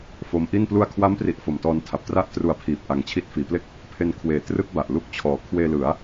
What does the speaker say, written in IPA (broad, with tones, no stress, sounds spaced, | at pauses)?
f o˦˥ m ʔ i˥˩ n p l u˧ a̯ kʰ w a˦˥ m p r i˨˩ ʔ f o˨˩ m t ɔː˧ n tʰ a˨˩ p̚ t r a˥˩ ʔ t r u˧ a̯ pʰ iː˨˩ p̚ ʔ a˨˩ ŋ t͡ɕʰ i˦˥ t̚ f iː˩˦ p l e˥˩ k̚ | pʰ e˧ n kʰ w eː˨˩ t r ɯ˥˩ k̚ b a˨˩ ʔ l u˥˩ k̚ t͡ɕʰ ɔː˨˩ kʰ w eː˧ l ɯ˩˦ a̯